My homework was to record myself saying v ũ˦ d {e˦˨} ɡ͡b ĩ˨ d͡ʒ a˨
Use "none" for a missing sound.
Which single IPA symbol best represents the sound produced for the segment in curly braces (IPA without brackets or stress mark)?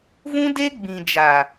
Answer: e˦